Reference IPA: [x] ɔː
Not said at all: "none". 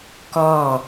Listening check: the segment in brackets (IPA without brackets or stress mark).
k